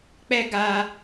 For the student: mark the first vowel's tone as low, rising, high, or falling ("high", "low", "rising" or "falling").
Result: high